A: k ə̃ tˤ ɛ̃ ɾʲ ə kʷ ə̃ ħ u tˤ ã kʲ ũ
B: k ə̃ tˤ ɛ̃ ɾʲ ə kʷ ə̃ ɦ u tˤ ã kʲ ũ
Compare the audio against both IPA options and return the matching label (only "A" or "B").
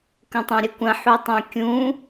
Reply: A